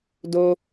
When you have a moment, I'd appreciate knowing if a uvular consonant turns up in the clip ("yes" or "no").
no